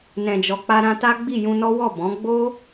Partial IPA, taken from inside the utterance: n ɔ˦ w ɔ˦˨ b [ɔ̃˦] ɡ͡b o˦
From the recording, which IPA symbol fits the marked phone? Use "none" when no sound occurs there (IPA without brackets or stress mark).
ɔ̃˨˦